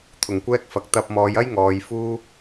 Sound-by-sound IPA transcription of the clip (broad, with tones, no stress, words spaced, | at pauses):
t̪ʰʊ˨˩ŋkʷɛː˥k̚fɐ˨k̚ t̪ɐ˧p̚mɔː˨˧jɐ˥j ŋɔː˨˧jfuː˥